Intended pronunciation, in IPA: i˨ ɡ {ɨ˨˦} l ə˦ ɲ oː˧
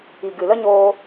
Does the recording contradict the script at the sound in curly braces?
yes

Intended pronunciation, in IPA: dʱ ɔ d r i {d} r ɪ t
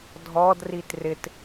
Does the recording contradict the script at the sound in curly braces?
yes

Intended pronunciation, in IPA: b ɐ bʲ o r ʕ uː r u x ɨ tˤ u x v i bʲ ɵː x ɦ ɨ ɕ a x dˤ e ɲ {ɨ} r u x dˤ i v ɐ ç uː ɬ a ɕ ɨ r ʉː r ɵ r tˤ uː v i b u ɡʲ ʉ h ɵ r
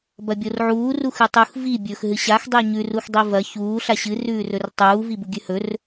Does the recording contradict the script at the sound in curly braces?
yes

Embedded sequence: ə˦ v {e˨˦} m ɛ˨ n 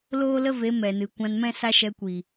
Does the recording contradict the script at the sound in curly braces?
no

